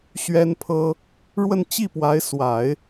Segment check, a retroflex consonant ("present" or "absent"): present